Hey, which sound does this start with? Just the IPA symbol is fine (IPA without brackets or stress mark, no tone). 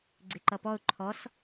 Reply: ɡ͡ǀ